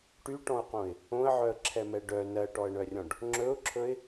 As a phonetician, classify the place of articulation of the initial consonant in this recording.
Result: retroflex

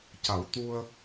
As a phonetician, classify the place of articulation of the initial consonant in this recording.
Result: palatal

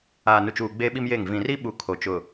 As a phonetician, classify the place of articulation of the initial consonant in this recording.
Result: alveolar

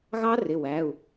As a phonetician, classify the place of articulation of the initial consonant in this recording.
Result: velar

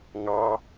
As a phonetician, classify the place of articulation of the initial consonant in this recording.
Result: velar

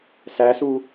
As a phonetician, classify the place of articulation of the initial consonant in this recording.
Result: alveolar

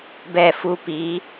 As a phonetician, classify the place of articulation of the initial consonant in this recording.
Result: labial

